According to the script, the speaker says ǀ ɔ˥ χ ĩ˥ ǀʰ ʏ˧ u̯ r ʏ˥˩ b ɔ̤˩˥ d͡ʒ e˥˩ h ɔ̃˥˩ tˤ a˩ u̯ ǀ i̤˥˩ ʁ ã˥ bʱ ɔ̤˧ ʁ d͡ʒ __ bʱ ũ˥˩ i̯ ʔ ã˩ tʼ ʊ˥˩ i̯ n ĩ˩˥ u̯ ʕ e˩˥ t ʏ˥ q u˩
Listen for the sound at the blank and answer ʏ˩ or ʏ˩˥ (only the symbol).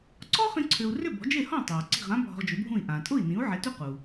ʏ˩˥